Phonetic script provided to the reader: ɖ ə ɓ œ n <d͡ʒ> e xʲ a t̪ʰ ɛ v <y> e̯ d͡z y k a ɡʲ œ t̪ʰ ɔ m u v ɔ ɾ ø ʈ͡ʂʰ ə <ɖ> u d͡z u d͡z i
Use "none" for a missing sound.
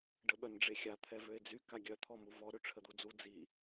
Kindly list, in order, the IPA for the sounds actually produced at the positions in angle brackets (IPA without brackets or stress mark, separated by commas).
ɖ͡ʐ, ø, d̪